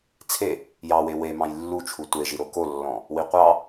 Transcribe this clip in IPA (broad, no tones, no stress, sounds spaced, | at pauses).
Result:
t͡sʰ e | j ɑ w e w e m ɑ̃ j lː u t͡ʃʰ u tʷ e ʒ i ɾ o k o lː ɔ̃ | w i qʷ ɑ